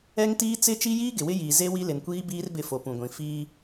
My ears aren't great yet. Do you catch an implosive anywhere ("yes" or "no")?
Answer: no